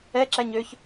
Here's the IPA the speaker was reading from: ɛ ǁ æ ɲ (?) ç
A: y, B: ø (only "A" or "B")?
B